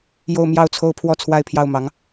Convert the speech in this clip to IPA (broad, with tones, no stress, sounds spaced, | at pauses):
j o˥˧ ʊ̯ m j ɑ˥˩ ʊ̯ t͡sʰ o˥ ʊ̯ pʰ w ɔ˥˧ t͡sʰ w a˥˧ ɪ̯ pʰ j ɑ˥˩ ʊ̯ m ɑ˧˥ ŋ